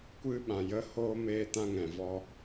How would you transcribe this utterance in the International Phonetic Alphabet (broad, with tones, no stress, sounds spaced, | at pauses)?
kʷ ɨ˦ ɓ ã˨ j ə˦ h oː˦ m eː˦ t ã˦ ŋ ɛ̃˨ v ɔ˧